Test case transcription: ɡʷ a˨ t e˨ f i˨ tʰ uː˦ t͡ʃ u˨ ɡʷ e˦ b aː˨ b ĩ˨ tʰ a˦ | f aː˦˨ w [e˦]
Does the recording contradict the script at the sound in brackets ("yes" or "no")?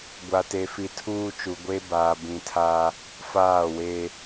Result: no